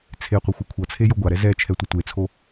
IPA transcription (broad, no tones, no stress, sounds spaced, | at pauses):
t͡sʰ e qʷ i xʷ ʌ kʷʰ ʌ t͡sʰ e j o ɡʷ a ɾ ɛ z ɛ t͡ʃʰ ɛ tʷ ʌ tʷ e t͡sʰ o